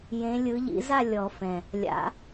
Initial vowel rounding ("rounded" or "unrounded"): unrounded